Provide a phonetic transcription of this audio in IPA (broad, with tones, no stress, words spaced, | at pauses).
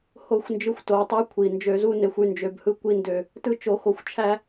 ho˦˨xʷnd͡ʒɯ˧xʷ to˨wtˤy˧ kʷʰi˨ nd͡ʒø˧zu˦ne˧xʷ y˧nd͡ʒø˨˦bhɯ˦ kʷi˧ndø˨ | tɯ˦t͡ʃo˧xo˧xʷ t͡ʃʰæ˦